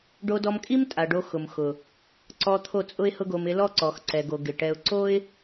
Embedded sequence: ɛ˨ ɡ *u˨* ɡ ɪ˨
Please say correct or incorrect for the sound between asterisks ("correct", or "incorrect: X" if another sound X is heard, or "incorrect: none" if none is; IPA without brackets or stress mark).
incorrect: o˨